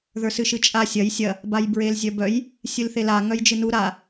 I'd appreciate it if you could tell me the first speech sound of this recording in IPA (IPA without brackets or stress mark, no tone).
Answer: ð